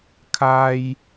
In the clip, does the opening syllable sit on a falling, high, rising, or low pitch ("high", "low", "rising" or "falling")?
high